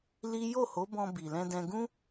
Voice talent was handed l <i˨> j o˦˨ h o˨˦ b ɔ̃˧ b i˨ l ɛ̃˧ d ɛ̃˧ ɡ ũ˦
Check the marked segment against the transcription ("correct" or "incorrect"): incorrect